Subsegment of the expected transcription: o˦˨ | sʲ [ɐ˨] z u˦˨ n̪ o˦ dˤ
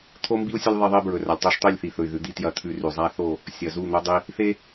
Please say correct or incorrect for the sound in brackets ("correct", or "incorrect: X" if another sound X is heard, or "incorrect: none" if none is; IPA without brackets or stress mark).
correct